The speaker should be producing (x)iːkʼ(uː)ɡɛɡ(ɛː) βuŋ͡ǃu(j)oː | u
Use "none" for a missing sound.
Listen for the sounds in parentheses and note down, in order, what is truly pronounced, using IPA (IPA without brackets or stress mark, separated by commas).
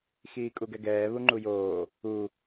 x, u, ɛː, j